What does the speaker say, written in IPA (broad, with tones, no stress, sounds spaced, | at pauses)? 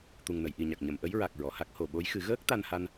t̪ u˨˩ ŋ n ə˨˩˨ j ʔ i˨˩ ɲ a˨˩ k̚ ɲ ə˨˩˨ m ʔ ə˧˥ j ɹ a˨˩ k̚ ɹ ɔ˨˩˨ h a˦˥ k̚ h o˨˩ ɓ o˧˥ j x ɨ˨˩˦ ɣ əː˦˥ k̚ t̪ a˧ n h a˧ n